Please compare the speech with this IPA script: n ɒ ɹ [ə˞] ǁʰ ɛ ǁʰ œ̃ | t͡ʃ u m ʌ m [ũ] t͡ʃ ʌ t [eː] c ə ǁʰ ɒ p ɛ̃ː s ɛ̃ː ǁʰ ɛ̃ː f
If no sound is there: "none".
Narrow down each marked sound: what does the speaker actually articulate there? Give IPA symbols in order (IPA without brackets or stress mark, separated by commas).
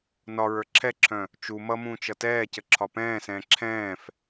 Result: ə˞, ũː, ɛː